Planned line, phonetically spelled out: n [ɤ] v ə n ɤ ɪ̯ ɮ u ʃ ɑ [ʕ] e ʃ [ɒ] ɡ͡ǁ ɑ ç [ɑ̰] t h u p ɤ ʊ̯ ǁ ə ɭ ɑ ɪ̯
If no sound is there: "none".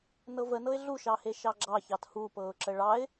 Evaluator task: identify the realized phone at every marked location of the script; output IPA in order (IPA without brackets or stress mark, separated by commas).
ɤ, h, ɑ, ɑ